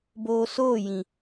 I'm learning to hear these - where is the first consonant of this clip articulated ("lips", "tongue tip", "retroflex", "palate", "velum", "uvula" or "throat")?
lips